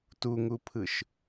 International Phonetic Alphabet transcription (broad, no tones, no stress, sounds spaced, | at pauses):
t u ŋ u pʰ ɯ ʃ